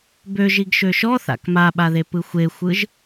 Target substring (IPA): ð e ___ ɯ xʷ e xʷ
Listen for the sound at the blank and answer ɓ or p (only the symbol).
p